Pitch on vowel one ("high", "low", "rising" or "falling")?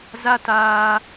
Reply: high